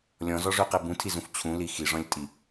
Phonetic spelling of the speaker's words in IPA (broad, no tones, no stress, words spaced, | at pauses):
lʲɔ̃zɔʐøqe bũtʰizũf t͡ɕʰũli xiʐɔ̃lʲtʼi